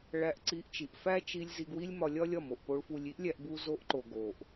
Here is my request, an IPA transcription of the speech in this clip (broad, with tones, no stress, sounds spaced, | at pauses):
ɭ æ˧ ʔ ǀ i˧ ʔ t͡ʃ i˨ ʔ f æ˦ t͡ʃ i˧ lʲ z i˧ ɡ w i˦ lʲ m ɒ˧ lʲ ɒ˦ lʲ ɒ˦˨ m o˨ ʔ p o˧ ɭ f u˧ lʲ i˦ ʔ lʲ æ˧ ʔ b u˧ z o˧ ʔ ǃ o˨ ɡ o˨ ʔ